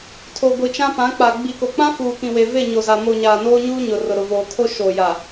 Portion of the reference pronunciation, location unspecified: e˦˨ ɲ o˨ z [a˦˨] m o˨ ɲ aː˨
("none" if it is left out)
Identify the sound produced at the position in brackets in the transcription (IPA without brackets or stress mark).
a˨